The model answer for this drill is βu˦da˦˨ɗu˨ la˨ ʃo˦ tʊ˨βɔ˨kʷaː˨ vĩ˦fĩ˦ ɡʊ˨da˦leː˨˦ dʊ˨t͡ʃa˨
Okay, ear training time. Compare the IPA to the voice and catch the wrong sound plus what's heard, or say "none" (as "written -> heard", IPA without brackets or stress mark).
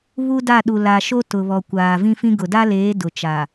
none